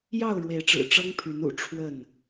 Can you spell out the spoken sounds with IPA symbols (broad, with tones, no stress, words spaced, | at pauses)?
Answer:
jɑ˥˨ʊ̯ɻwe˨˦ɪ̯ʈ͡ʂɻ̩˨˩ ʈ͡ʂɤ˦ŋpʰy˨˦nṵ˨˩ ʈ͡ʂʰwə˥˨n